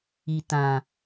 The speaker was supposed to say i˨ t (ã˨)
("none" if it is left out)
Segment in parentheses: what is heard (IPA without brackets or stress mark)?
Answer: ã˨